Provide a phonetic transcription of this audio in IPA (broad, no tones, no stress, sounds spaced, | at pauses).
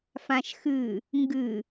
f ã ʃ x ɨ | ŋ ɡ ɨ